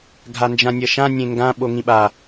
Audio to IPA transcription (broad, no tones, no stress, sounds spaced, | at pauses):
ɡʱ a n d͡ʒ ã nʲ ʌ ʃ ã nʲ ẽ ŋ ɡ ã ɓ o ŋ ĩ ɓ a